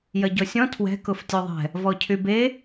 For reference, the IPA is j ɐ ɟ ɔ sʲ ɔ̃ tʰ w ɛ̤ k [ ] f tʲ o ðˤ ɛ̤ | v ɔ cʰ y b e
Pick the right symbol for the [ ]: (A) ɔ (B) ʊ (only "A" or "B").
B